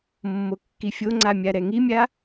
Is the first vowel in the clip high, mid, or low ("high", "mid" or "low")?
mid